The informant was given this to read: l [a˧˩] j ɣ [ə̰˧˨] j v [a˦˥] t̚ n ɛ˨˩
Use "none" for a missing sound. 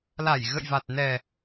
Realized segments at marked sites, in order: a˧˩, ə̰˧˨, a˨˩

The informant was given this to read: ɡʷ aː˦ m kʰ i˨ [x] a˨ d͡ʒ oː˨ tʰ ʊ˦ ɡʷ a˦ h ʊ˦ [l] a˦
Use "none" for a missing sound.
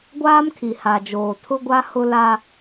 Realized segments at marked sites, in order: h, l

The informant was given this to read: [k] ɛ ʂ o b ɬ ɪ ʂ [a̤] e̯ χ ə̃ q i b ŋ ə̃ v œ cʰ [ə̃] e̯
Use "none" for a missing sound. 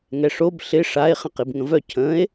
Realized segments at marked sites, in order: ŋ, a, ə̃

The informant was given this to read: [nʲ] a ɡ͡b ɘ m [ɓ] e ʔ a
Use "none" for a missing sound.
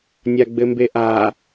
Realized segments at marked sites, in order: nʲ, b

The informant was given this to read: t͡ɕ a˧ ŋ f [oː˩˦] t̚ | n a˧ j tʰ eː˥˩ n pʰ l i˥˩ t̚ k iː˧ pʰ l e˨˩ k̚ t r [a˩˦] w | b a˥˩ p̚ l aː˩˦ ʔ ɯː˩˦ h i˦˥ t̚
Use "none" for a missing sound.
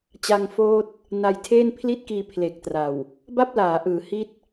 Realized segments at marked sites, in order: oː˦˥, a˨˩

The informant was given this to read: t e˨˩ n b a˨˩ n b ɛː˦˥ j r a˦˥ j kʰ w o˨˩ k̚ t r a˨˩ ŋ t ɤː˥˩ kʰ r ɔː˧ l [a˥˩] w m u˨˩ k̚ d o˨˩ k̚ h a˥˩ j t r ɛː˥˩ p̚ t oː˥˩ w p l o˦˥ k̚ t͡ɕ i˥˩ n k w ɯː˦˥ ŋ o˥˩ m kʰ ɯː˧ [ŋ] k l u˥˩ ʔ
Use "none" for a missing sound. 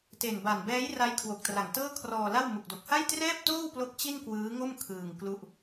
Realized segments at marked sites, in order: a˥˩, ŋ

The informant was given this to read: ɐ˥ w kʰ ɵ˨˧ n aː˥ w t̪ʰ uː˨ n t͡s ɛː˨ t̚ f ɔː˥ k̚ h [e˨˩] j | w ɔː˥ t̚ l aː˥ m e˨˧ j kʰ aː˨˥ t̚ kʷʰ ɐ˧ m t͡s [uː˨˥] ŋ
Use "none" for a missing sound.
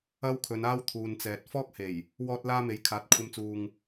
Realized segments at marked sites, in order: e˨˩, uː˨

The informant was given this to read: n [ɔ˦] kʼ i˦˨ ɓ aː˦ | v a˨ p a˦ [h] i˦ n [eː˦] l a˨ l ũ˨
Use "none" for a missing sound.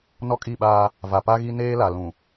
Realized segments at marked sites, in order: ɔ˦, ɣ, eː˦

